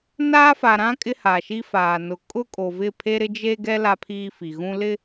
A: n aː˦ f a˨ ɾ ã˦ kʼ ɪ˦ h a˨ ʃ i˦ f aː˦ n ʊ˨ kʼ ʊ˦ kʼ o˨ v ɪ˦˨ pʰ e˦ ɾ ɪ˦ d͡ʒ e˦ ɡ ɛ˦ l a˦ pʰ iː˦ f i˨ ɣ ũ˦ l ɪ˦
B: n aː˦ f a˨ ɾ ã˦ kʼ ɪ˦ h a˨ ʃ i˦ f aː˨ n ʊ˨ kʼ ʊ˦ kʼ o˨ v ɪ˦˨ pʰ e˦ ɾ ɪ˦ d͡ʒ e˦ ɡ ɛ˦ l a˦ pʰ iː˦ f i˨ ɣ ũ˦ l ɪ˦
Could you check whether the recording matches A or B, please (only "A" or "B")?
B